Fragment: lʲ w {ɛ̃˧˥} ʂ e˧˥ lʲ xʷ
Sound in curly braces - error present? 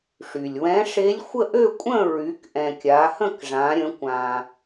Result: no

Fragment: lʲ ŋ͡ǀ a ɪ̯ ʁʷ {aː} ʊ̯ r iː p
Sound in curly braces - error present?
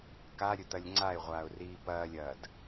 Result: no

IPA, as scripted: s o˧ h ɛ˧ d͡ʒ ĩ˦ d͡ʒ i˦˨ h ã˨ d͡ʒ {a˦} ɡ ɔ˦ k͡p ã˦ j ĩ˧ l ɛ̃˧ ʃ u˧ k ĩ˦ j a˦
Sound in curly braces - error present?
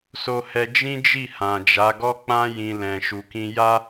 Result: yes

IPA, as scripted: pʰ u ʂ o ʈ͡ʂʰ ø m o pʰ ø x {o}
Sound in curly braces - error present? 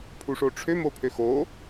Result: no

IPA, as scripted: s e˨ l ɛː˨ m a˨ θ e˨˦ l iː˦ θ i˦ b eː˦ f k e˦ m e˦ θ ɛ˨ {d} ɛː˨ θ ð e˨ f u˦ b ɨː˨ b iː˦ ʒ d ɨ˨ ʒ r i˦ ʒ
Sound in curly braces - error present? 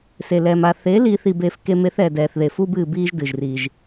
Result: no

